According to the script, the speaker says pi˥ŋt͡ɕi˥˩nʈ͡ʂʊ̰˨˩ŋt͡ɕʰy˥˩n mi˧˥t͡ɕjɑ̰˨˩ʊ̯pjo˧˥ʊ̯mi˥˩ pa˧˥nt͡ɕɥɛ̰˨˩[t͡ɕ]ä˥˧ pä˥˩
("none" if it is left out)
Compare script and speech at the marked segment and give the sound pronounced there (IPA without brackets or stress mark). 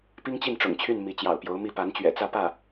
t͡s